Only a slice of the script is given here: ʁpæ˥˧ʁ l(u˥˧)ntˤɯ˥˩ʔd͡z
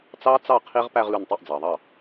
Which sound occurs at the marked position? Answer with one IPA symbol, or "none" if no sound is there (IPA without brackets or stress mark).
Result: u˥˩